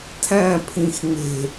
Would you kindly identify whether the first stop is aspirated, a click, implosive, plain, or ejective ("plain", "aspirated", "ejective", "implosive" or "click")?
aspirated